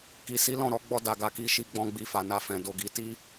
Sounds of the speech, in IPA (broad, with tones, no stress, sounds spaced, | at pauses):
k i˨ s i˨˦ l ɔ̃˦˨ ɾ ɔ˨˦ ɡ͡b ɔ˧ d a˨ ɡ a˨ k i˨˦ ʃ i˧ ɡ͡b ɔ̃˧ ɡ͡b i˧ f a˨ n a˧ f ɛ̃˨ d o˧ ɡ i˧ t i˦